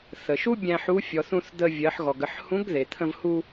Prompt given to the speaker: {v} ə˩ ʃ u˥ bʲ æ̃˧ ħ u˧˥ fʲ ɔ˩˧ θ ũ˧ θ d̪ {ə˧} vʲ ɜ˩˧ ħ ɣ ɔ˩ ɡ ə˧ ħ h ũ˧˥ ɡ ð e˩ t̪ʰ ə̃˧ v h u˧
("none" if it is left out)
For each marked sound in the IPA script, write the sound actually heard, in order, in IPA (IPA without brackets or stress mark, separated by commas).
θ, ə˧